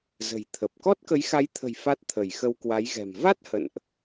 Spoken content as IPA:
z ə̤˨˩ j t̪ʰ ə˨˩ p̚ k ɔ˦˥ t̚ k ə˨˦ j x a˨˦ j t̪ʰ ə̤˨˩ j f a˦˥ t̚ t̪ʰ ə˧˩ j x ə˧ w k w a˨˦ j ɣ ɛ̤˨˩ m v a˦˥ t̚ h ə̰˧˨ n ʔ

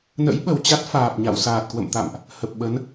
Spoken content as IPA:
n ə̰˧˥ j ɓ ə˨˩ w t͡ɕ a˦˥ t̚ f aː˨˩ p̚ ɲ a̰˧˨ w s aː˨˩ t̚ k w ə̰˧˨ m t̪ a̰˧˨ m ʔ | h ə˨˩ p̚ ɓ ə˨˦ n

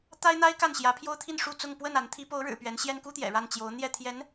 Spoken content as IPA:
t̪ a˥ ɪ̯ n̪ a˥ ɪ̯ k a˥˩ n ɕ j ä˧˥ pʰ j o˥ ʊ̯ t̪ʰ i˥˧ n ʂ u˥˧ t͡s ʊ˥˧ ŋ p w ə˥˩ n a˧˥ n t̪ʰ i˧˥ p o˧˥ ʊ̯ ɻ ɻ̩˨˩ p ɥ ɛ˧˥ n ɕ j ɛ˥ n k u˥ t̪ j ɛ̰˨˩ ɻ a˥˩ n t͡ɕ j o˧˥ ʊ̯ n̪ j ɛ˥˩ t̪ʰ j ɛ˧˥ n

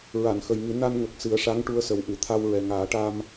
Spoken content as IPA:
ɹ a˨˩˨ n x ə˨˩ j ŋ ɨ˨˩˦ n a˧ n ŋ ə˨˩ k̚ s ɨ˨˩˦ ə̯ ʂ a˧˥ ŋ ʈ u˧ ə̯ s ə˨˩ w ʔ ɨ˨˩˨ t̪ʰ a˧ w ɹ ɛ˨˩ ŋ aː˨˩˦ ʈ a˧ m

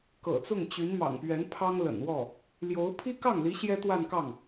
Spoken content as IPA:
k ɤ̰˨˩ t͡s ʊ˥˩ ŋ t͡ɕ y˧˥ n m ɑ̰˨˩ ŋ p ɥ ɛ˧˥ n pʰ ɑ˥ ŋ l ə̰˨˩ n w ɔ˥˩ | l j o˧˥ ʊ̯ pʰ i˥ k ɑ˥˩ ŋ l i˧˥ ɕ j ɛ˥ t̪ w a˥˧ n k ɑ˥˩ ŋ

